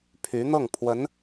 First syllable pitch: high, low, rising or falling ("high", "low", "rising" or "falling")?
rising